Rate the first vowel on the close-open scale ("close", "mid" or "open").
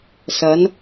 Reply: open